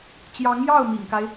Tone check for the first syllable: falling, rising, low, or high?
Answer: rising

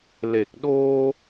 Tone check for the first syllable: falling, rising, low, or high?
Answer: low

